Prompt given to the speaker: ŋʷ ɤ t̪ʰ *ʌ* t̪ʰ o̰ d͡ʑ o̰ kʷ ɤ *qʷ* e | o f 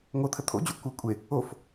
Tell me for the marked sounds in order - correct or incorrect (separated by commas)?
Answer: incorrect, incorrect